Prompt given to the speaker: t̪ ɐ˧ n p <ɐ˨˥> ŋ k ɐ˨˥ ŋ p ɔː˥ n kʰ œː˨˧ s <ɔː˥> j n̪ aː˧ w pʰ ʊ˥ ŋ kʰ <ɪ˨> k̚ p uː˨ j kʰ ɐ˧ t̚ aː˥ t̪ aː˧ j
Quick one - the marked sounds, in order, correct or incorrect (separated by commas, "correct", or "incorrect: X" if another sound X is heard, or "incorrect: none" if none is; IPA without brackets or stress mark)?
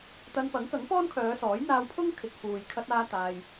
correct, incorrect: ɔː˨˥, correct